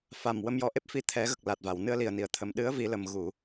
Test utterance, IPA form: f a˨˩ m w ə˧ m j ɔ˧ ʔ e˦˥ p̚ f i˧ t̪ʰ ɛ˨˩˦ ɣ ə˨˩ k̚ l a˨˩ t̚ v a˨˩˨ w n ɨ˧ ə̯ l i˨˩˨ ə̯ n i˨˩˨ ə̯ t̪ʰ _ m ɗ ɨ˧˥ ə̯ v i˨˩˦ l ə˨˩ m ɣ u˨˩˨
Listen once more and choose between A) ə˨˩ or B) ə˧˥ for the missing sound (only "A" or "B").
A